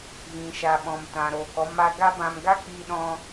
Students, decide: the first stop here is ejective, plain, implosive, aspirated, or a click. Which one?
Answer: implosive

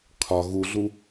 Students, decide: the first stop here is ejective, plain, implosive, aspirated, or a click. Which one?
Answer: aspirated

